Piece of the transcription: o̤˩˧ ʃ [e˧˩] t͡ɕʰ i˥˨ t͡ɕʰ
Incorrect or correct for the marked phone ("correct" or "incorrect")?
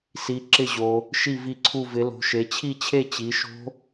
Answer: incorrect